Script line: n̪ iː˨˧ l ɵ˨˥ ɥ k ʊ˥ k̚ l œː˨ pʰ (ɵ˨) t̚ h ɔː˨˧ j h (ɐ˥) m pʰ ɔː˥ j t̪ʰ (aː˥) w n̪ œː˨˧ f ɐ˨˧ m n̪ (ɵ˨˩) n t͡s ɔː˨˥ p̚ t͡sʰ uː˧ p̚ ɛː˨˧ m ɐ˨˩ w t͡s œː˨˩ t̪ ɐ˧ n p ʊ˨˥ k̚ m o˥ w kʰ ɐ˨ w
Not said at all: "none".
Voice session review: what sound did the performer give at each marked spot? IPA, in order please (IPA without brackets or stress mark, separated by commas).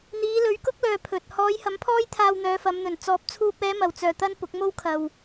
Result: ɵ˨, ɐ˨˥, aː˧, ɵ˨˩